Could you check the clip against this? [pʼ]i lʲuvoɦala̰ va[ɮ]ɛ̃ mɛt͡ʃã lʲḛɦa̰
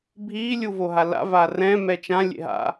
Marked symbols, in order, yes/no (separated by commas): no, no